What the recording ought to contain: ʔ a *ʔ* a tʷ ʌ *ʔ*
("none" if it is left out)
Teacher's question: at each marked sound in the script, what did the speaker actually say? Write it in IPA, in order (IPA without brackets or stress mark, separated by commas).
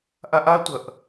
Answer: ʔ, ʔ